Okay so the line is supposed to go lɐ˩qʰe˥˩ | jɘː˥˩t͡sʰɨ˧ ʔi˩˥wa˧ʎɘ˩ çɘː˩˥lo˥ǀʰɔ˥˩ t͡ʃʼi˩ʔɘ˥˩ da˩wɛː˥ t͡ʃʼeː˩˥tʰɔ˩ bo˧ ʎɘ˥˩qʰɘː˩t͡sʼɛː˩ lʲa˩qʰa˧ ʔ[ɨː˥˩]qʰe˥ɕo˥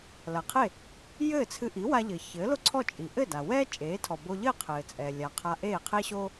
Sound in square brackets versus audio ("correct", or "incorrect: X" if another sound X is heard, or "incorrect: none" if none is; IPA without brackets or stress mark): incorrect: eː˥˩